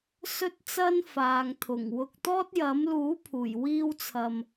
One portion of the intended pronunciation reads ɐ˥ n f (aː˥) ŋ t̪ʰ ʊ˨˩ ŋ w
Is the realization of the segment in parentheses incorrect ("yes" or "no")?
yes